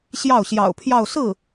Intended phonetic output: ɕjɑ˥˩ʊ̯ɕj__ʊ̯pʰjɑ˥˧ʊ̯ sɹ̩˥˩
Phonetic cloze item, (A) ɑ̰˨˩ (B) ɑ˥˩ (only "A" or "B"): A